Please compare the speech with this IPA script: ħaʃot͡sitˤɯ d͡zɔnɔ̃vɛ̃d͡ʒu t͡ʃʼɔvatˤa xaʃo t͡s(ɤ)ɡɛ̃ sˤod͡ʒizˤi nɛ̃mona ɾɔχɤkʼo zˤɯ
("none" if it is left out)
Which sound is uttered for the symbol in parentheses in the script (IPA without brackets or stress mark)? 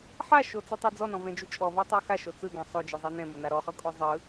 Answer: ɯ